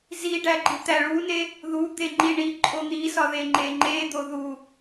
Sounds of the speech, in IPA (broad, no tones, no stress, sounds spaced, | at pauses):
z i ɖ æ ɡ͡ǃ i t̪ æ ɭ u n e | ð u d̪ e ŋ͡ǃ i ɳ i ǃʼ o n̪ i s ɒ ð e ŋ͡ǃ e ŋ͡ǃ e d̪ o ð u